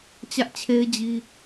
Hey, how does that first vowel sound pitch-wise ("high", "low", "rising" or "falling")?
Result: high